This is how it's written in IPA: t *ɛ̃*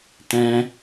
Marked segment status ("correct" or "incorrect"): correct